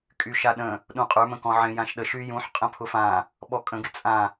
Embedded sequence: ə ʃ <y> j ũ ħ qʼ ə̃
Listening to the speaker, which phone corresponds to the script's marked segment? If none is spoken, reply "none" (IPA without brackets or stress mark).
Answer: y